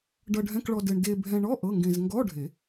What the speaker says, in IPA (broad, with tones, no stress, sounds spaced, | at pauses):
ɖ ʌ˧ ɖʱ ɛ̃˧˥˧ k ɭ ɔ˧ d ɘ˧ ɳ d e˧ bʱ ɛ̃˧ ɳ ɔ˧˥˧ ʔ ɤ˧˥˧ ŋ ɡ ẽ˧ z ŋ ɡ ɔ˧˥˧ ɖʱ e˨˩˦